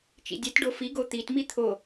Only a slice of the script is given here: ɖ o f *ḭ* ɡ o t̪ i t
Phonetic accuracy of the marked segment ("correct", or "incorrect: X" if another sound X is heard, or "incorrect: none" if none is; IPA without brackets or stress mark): incorrect: i